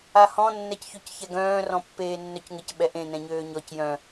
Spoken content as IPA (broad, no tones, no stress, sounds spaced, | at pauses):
a h ɔ̃ nː ɛ c ç ʏ c ç ɛ ɡ œ̃ː r ɔ̃ pː eː nː œ c ŋ ɪ c ɓ ɛ ʔ ẽ n ɛ̃ ɲ øː ɲ ɔ c j œ̃